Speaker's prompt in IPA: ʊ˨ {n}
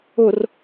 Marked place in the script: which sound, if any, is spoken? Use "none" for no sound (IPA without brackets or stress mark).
r